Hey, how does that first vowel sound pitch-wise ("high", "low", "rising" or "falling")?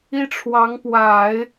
high